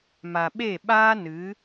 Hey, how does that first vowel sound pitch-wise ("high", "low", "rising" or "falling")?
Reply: low